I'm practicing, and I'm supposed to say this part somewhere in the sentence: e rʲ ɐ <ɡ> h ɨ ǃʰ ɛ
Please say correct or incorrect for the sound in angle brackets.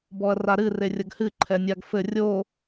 correct